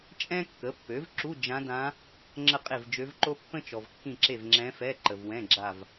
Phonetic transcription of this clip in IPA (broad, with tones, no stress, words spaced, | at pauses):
t͡ʃʼɛ̃˥kːə˩˥pːø˩˥vǁu˧˥˧ d͡ʒã˧˥dã˧˥ | ŋ͡ǁə˦˨ qʼe˦˨vd͡ʒø˧˥vǃo˥ pːə̃˥t͡ʃɔ˨vkːĩ˦˨ǁe˦˨v ŋ͡ǁɛ̃˧˥fɛ˧˥˧ ǃə˨vwɛ̃˧˥˧ ɡ͡ǁa˦˨v